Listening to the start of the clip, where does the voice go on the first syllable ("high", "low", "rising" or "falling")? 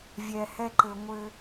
low